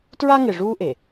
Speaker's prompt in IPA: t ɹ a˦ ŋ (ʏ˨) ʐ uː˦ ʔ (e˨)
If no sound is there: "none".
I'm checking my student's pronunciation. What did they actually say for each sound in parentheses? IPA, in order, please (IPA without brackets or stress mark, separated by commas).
ɪ˨, e˨